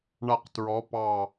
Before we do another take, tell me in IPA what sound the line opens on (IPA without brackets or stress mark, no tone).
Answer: ɳ